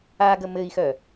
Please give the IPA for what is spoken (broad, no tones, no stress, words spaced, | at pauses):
aɡə mɘi̯xœ